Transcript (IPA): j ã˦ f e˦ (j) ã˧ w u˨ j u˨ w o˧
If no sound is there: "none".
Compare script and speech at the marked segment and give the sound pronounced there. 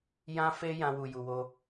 j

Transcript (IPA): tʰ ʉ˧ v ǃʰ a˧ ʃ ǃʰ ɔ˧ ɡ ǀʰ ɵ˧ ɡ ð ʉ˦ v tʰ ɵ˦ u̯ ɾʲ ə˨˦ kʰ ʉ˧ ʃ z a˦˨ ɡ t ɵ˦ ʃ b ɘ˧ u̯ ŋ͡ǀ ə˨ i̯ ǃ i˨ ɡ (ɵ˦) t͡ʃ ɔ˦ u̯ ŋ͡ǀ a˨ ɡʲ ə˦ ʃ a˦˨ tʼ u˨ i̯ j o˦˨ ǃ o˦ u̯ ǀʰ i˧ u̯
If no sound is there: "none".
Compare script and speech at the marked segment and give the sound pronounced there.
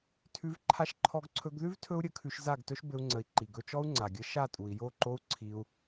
ɵ˧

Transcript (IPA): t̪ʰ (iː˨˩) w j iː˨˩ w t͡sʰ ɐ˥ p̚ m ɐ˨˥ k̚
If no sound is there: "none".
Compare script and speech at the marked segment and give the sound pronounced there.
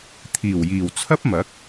iː˨˩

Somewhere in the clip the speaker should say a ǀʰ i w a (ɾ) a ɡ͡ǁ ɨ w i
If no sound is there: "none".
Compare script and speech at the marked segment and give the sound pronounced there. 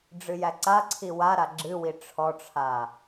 ɾ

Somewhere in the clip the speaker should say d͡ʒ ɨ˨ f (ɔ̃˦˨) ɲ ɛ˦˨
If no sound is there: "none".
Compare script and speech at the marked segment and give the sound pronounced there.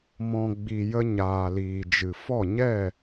ɔ˦˨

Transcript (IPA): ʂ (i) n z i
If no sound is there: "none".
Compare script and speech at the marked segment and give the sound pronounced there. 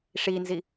i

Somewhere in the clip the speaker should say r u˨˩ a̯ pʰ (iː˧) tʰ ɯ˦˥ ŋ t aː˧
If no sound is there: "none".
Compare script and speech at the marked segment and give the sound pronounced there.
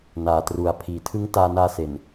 iː˨˩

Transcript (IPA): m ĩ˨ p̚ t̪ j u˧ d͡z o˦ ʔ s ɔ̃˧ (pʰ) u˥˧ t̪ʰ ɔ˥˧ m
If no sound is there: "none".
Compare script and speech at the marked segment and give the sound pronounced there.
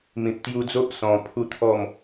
pʰ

